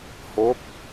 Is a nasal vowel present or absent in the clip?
absent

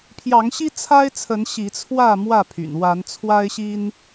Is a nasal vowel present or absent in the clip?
absent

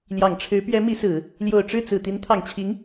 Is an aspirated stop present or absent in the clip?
present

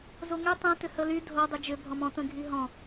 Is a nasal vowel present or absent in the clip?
present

